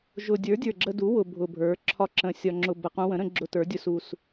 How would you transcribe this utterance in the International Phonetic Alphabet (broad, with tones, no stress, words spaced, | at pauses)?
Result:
ʒʊ˨˩dʲə˞˩˥ dʲə˞˨˩ɡ͡ǁə˧du˩˥ wʊ˨˩ bʱʊ˨˩bʱə˞˩˥ ǁʰɒ˧ǁə̃˨˩ sʲɒ˨˩ŋ͡ǁʊ˨˩bə˨˩ qũ˧wə̃˩˥ɾə̃˧ ɡ͡ǁʊ˧ tə˞˩˥dʲʊ˧su˨˩s